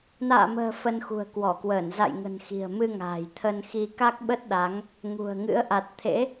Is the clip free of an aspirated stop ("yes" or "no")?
no